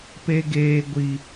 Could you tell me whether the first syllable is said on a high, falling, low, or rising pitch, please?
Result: high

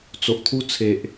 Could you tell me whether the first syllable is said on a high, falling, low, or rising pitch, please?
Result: low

